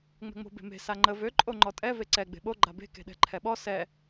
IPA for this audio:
ŋ͡m ɛ̤ ŋ͡m o̤ b e̤ m e̤ s a ŋ͡ǃ ə v ø ǃʼ o ŋ͡ǃ ɔ tʼ ɛ v e ǀ ɛ ɡ͡b e̤ ɓ o ɡ͡ǃ a b e̤ k e̤ ɗ ɛ̤ ǃʰ ɛ ɓ ɔ s ɛ

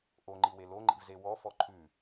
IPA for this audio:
ʔ o ŋ͡ǃ i w e l o ŋ͡ǃ ḭ v z e w ɔ f ɔ ǃʰ ʉ

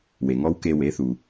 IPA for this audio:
w e˩ ŋ ɔ˥ w k e˧ w e˩˥ θ u˩

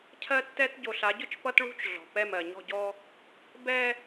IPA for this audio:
cʰ ɜ˦ tː ɛ˦ t ɟ o˨ ɬ a˨˦ ɟ ʊ˦ t͡ʃ p ʌ˦ t ɭ ṳ˦ t͡ʃ ɮ ɔ̤˨ p ɛ˦˨ m ɜ˨ ɲ ɔ̤˦˨ ɟ ɔ˦ | b ɛ˦

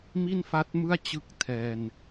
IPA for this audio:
m i˥˩ n f a˦˥ t̚ m ɯ˥˩ a̯ t͡ɕ ɯ˦˥ k̚ tʰ ɛː˧ n

